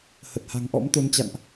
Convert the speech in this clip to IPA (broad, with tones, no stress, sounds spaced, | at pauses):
h ə˨˩ t̚ h a̤˨˩ ŋ ʔ ɔ̰˧˥ m t̪ o˨˦ n t͡ɕ a̰˧˨ n ʔ